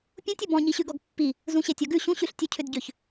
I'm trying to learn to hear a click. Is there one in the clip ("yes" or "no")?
no